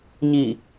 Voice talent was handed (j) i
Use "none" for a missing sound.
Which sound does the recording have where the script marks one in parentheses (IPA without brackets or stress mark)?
ɲ